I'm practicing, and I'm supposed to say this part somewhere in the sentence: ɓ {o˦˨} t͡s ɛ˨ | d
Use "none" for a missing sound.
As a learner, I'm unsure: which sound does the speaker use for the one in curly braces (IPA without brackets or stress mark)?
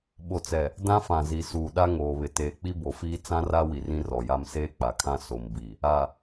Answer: o˨